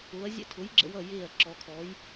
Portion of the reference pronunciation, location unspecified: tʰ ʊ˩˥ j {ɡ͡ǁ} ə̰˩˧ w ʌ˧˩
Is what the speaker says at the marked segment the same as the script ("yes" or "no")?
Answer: yes